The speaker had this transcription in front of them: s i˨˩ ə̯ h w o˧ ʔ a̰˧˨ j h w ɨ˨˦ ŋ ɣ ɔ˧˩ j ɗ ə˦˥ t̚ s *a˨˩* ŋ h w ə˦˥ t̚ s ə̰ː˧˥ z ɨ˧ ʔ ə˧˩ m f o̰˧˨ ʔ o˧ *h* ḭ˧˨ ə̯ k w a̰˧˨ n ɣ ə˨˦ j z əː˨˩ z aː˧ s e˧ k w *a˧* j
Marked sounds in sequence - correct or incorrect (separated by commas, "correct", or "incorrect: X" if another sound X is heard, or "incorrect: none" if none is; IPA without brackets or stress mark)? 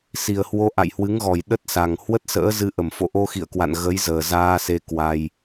correct, incorrect: x, correct